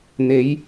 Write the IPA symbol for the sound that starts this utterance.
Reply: n̪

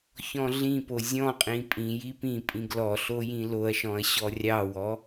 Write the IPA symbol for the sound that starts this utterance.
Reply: ç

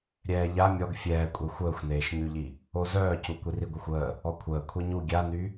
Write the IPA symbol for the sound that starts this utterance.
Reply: ɾʲ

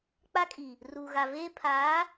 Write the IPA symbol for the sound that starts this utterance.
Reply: k͡p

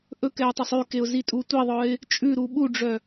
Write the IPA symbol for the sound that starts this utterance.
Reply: ʔ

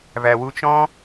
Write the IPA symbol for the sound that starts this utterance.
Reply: v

